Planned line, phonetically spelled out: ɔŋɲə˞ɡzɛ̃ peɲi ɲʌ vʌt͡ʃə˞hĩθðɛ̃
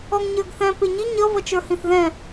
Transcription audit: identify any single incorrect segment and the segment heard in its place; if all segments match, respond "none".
z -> θ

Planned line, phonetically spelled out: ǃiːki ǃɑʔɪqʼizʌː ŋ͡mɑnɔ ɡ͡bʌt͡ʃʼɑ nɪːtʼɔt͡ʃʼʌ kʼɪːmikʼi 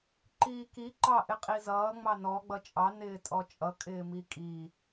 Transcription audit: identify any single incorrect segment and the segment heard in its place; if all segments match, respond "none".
none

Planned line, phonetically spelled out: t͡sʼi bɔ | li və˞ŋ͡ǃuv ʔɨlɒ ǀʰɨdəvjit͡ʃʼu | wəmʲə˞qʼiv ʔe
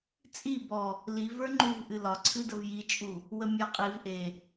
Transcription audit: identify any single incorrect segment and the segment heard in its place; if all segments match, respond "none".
none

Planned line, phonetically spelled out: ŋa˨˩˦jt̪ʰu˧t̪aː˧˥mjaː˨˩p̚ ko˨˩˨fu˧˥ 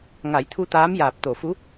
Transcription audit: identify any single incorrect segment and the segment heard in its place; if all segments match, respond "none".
k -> t̪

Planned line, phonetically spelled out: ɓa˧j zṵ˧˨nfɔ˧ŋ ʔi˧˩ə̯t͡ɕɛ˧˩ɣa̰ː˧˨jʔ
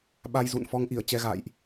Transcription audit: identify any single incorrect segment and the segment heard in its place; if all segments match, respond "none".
ɛ˧˩ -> ɛ˧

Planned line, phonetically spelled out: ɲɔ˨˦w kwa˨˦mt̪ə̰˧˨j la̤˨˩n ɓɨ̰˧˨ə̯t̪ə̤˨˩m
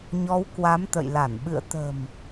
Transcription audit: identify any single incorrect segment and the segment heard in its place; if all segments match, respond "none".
a̤˨˩ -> a˧˩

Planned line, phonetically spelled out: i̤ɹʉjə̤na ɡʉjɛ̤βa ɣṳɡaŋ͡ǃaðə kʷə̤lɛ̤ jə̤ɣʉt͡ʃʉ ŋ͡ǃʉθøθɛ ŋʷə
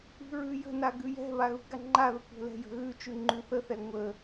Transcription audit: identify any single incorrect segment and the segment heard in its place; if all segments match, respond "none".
ø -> ə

